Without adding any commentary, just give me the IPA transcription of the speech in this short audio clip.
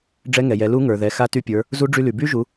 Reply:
ɖ͡ʐ ɛ˧˥ ŋ ɛ˩ j ɛ˩˧ l u˧˥ ŋ ə˞˩ ð ɛ˩˧ x a˧˥ t y˧ pʲ ə˞˩˧ | z u˧˥ ɖ͡ʐ y˧ l y˩ b y˥ ʒ u˩˧

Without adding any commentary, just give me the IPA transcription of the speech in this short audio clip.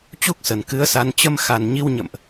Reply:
t͡ɕ u˦˥ k̚ s ə˨˩ n k ɨ˨˦ ə̯ s a˨˦ n t͡ɕ ə˧ m x a˨˩ n ɲ i˧ w ɲ ə̰˧˨ m ʔ

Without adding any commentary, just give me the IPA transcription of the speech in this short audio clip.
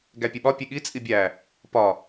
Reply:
ɡ æ pʲ e ɓ ɒ pʲ e ɠ i t͡sʼ i bʲ æ | p ɒ

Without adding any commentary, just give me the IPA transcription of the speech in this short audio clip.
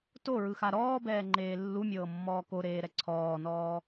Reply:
t o ɹ ɯ x a ɾ ɔː b ɛː ŋ͡ǃ eː lː u mʲ ɤː mː ɔː k o ɾ eː ɾ ɛ ǀʰ ɔː n ɔː

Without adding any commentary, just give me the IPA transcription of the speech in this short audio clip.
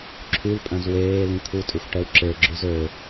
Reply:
ǁʰ y l pʼ œ̃ z w eː l ĩ t̪ʰ u tʼ y xʷ ʈ ɛ w ǁ e ɡ͡ǁ y z ø

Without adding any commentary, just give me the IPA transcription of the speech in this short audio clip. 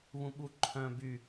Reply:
β ũ ɓ u ǃʰ œ̃ b y

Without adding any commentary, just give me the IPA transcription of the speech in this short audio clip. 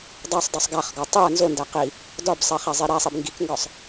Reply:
dˤ a sˤ dˤ u sˤ ɡ a χ ɡ ɒ tˤ i ɐ̯ n z o n d æ q i | d ɒ b sˤ ɛ χ æ zˤ i ɾ æ sˤ i b ŋ ɡ i k ŋ ɡ ɒ sˤ

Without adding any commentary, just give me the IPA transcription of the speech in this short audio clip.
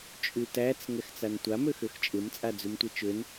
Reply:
t͡ʃʼ ʉ t æ t͡s ŋ ɛ x t͡s a n tʷ a m ø x ø x t͡ʃʼ ɪ m t͡sʼ a d͡z ʉ m tʷ ə t͡ʃ ø n

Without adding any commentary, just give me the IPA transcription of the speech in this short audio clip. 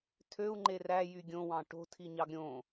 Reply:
tʰ ø u̯ ŋ͡ǃ e r æ j y ɡʲ õ w ɑ̃ ʈ o̤ tʰ i ɲ ɑ ɡ ɾʲ õ

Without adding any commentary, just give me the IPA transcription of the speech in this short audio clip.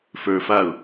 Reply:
f ə˞ f a ʊ̯

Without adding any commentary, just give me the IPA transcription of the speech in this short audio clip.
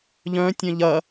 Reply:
ʎ œ̃ tʲ œ̃ ʎ ɐ

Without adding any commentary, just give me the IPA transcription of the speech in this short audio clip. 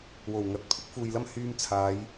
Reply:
w o˨˩ w ŋ ɐ˨˥ t̚ pʰ ɪ˥ k̚ f uː˨ j l ɐ˥ m h yː˧ m t͡sʰ aː˨˧ j

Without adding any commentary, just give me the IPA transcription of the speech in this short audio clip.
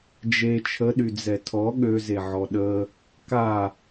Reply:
d͡ʒ e t͡ʃʰ ə ɗ y d͡z ɛ tʰ ɔ ɠ ø z e ʕ ɔ ɗ ə | k a

